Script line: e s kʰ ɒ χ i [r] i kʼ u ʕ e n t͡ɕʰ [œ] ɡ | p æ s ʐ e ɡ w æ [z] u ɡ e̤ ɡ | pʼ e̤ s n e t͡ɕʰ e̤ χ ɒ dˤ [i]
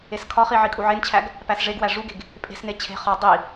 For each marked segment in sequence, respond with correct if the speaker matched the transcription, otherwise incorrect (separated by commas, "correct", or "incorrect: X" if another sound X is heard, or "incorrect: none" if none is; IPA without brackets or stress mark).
incorrect: ʕ, incorrect: æ, incorrect: ʐ, correct